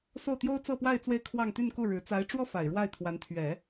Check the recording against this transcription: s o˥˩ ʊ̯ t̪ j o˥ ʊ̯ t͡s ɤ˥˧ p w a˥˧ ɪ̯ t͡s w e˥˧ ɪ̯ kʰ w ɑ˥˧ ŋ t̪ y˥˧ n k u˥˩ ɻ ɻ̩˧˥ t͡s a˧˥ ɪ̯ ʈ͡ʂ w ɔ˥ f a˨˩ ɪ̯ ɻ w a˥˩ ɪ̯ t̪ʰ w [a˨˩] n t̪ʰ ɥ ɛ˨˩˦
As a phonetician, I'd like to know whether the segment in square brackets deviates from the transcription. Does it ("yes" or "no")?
yes